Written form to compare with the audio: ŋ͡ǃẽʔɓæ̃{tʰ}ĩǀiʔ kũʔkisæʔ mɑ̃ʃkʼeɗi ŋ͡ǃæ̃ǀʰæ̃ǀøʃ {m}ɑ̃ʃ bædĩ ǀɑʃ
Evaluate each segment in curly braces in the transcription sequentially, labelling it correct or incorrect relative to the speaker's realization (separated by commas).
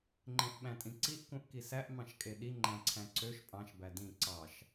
incorrect, incorrect